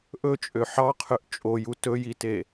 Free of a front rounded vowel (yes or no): no